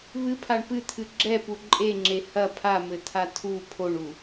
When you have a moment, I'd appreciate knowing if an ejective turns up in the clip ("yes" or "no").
yes